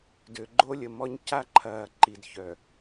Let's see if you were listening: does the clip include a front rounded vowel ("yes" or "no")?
yes